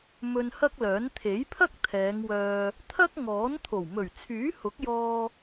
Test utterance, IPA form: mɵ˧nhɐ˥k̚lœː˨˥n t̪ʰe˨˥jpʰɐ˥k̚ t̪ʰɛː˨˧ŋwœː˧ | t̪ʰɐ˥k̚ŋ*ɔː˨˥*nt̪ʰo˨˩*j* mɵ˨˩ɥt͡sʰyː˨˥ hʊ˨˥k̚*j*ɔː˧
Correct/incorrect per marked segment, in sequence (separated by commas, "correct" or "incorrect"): correct, incorrect, correct